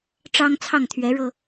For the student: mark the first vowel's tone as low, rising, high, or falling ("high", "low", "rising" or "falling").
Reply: high